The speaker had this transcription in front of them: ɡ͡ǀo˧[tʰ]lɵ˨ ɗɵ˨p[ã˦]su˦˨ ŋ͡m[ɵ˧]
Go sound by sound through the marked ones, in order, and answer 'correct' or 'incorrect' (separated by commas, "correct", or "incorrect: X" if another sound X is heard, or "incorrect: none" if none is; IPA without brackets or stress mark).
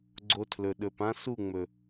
correct, correct, incorrect: ɵ˨